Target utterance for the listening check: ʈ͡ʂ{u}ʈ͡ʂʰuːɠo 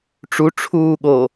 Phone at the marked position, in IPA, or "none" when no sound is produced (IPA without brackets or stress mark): u